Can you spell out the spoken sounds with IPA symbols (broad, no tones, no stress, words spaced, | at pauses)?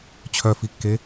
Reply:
t͡ɕʰœfikːe